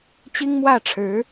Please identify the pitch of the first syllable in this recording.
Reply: high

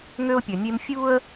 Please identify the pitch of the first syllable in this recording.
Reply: high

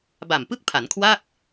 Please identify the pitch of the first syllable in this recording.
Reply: low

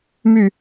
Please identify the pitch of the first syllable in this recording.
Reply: falling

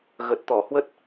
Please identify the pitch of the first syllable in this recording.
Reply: low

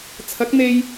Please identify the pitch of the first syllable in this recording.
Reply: rising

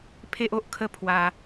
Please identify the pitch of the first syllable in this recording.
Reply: high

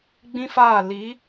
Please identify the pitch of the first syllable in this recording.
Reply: high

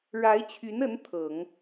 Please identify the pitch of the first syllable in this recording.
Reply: rising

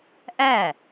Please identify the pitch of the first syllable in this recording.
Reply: falling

